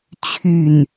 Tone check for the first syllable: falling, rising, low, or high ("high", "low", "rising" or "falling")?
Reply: falling